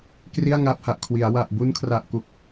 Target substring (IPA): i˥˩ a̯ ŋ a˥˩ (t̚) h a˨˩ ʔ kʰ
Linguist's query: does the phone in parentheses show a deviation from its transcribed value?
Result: yes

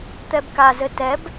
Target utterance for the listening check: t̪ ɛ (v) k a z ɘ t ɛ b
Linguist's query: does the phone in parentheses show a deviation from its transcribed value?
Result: yes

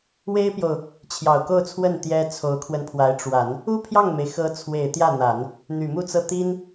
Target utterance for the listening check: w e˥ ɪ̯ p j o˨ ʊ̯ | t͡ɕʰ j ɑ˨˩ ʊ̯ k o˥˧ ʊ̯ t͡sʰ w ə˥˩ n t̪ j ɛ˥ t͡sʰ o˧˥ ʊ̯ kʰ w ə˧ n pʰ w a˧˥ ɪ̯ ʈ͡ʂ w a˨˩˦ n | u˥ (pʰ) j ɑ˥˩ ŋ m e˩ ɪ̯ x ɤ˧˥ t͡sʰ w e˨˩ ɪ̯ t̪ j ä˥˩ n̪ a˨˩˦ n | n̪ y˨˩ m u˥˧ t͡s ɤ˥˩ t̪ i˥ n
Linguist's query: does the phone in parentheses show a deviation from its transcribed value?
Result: no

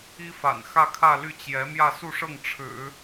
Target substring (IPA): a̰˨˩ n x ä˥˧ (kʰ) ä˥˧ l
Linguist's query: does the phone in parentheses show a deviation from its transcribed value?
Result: no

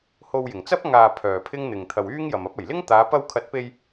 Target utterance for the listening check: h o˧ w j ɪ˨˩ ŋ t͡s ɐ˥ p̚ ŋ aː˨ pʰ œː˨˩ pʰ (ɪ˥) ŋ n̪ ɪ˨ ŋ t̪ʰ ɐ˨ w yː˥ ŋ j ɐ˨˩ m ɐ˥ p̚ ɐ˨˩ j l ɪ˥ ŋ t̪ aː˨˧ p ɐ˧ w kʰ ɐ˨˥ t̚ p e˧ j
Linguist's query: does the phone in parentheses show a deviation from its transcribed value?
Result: no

